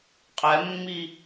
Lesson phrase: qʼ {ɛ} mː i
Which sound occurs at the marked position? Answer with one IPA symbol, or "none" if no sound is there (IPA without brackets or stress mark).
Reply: ɛ